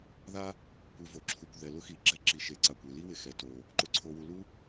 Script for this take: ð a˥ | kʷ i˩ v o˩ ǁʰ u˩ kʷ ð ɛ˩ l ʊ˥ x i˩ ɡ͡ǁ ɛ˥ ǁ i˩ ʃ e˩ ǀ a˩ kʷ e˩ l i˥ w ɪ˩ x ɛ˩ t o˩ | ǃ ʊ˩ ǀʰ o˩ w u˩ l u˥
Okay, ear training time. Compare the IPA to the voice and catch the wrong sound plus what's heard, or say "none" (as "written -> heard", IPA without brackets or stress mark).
none